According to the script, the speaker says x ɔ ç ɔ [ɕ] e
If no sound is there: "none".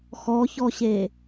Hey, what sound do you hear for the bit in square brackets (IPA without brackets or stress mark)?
ɕ